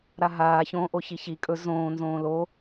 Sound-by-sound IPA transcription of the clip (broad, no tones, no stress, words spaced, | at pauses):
ɾaɦaː çõːʔoçiçi kʼɵ zõːnzõː lo